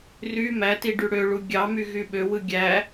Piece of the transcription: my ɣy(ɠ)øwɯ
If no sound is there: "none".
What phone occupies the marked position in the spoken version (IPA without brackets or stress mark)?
ɓ